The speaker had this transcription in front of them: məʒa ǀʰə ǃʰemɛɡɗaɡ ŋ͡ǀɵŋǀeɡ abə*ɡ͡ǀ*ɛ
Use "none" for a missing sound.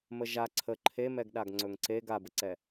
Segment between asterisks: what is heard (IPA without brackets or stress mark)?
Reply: ǀ